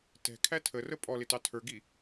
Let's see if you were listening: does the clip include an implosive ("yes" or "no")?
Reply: no